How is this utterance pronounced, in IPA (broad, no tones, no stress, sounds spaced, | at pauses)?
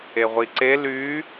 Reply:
e ʁʷ i ǀ e l y